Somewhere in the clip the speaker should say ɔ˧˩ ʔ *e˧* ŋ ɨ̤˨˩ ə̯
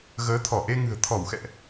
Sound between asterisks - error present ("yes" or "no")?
no